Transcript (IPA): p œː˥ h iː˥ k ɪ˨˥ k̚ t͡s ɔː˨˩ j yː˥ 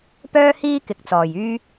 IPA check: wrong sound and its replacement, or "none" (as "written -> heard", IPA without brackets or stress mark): none